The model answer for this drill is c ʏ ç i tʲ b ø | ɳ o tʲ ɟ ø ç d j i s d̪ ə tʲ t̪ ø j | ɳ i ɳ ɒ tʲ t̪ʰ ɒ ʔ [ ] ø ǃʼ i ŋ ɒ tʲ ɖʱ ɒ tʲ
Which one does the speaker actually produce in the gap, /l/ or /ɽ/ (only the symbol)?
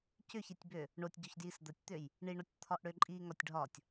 ɽ